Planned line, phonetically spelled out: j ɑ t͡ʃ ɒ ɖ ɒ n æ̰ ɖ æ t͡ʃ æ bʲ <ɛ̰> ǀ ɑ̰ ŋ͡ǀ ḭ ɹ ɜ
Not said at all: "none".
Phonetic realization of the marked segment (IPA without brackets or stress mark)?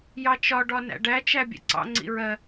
ɛ̰